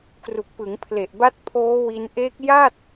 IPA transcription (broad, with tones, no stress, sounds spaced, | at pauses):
k r u˨˩ k̚ p ɯ˩˦ ŋ pʰ l e˨˩ ʔ b a˦˥ t̚ pʰ oː˦˥ w i˧ n ʔ e˦˥ k̚ j a˥˩ t̚